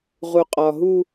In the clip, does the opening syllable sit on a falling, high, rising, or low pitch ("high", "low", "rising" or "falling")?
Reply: low